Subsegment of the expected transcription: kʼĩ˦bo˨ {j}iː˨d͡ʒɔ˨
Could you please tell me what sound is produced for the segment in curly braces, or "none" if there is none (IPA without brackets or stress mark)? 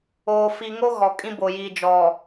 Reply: j